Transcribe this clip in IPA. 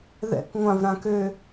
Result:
ð ɛ̰ k ŋʷ ã v ɾ ã k ø

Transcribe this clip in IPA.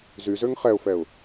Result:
z y z ø ŋ χ ɛ ʊ̯ f ɛ ʊ̯

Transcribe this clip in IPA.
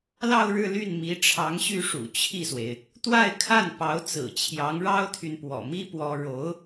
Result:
l ɑ˥˧ ʊ̯ ɻ ɻ̩˥˧ l y˥˩ n m i˧˥ ʈ͡ʂʰ ɑ˧˥ ŋ ɕ y˥˩ ʂ ṵ˨˩ t͡ɕʰ i˥˩ s w e˩ ɪ̯ | t̪ w a˥˧ ɪ̯ kʰ a˥˩ n p ɑ˧˥ ʊ̯ t͡s ɹ̩˨˩ t͡ɕʰ j ɑ˧˥ ŋ ɻ ɑ˥ ʊ̯ t̪ʰ y˨ n p w ɔ̰˨˩ m i˥ p w ɔ˥ ɻ o˧˥ ʊ̯

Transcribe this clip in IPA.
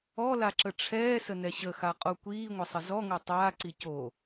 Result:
ɔ l a ǁ ə ʈ͡ʂʰ ɛː s ə n ɛ ɕ ə x a qʼ o kʷ iː ŋʷ ə sˤ ə z ɔ ŋ o tˤ aː ǀ i c o

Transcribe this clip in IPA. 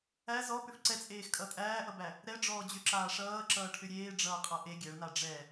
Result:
æ z ɔ p ʏ f ǀ ɛ t͡sʼ eː x kʼ ʌ tʼ æː ʔ ʌ b æ | ɾ ɛ ɖ͡ʐ ɔː d͡ʑ ʏ ǁ aː ʂ ʌː ǁ ʌː ʈʰ ʏ ɾʲ eː ɖ͡ʐ ʌː qʼ ʌ ʔ e ɡʲ æ ɭ n a ɖ͡ʐ ɛ

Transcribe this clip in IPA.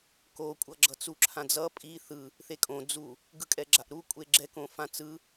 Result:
k o kʷʼ ʌ ɡ͡ǁ ʌ t͡s u ǁʰ ã d͡z ʌ pʼ i θ ɯ | θ e kʼ õ d͡z u | ɡ ɯ kʼ ɛ ɡ͡ǁ a ʔ ɾ u kʷʼ e ɡ͡ǁ ɛ k õ f ã t͡s ɯ

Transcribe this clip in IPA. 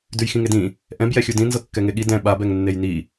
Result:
d ʉ j x ĩ ŋ e d ĩ | ʔ ɛ̃ b j ɛ xʲ u d ĩ n z ɤ kː ɛ ŋ e ɠ i d ɛ̃ ɓ a b ɛ ŋ nː e j n i

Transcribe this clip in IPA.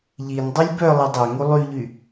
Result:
ʎ i n dˤ u lʲ b œ lˠ i dˤ ɛ ŋ u lˠ y ʎ y

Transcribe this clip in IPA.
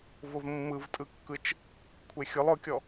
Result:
v ʊ v mː ɯ v tʼ ɯ kː ɯ t͡ʃ | kʷʰ e xʲ ʊ lˠ ʊ kʲ ɔ

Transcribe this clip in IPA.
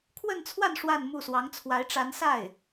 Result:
kʰ w ə˥˧ n t͡sʰ w a˥˧ n ʂ w a˥˧ n m u˥˩ s w ɑ˧˥ ŋ t͡sʰ w a˧˥ ɪ̯ ʈ͡ʂ a˧˥ n s a˥˩ ɪ̯

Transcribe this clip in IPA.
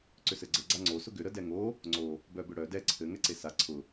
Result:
ǀ ʏ s ɘ ɡ͡ǀ ə ɡ͡ǀ a ŋ͡ǀ o s ʊ ɡ ʏ ɾ ə d ɛ ŋ o | ŋ͡ǀ o | b œ b ʏ ɽ œ d ɛ ǀʰ ɘ ŋ ɛ ǀ e s a ǀʰ ʊ

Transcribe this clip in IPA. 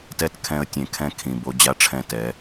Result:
t ɛ˦ t kʰ ɛ̃˧ ə̯ tʲ ẽ˨ kʰ ɛ̃˦ kʰ ĩ˨ b o˧ d͡ʑ a˦ ʈ͡ʂʰ ɛ̃˦˨ t ɛ˨˦

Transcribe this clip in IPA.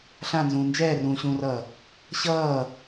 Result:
ɬ ã n z ũː n d͡ʒ ɛː r ũː ɕ ũː r ʌː | ɕ ʌː

